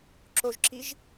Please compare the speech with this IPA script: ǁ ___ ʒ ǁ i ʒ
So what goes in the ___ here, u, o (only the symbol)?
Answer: o